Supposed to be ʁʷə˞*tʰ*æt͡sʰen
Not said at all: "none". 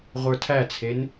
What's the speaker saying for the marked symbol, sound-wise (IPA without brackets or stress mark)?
tʰ